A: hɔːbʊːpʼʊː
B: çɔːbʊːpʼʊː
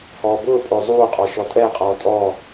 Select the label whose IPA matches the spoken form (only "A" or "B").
A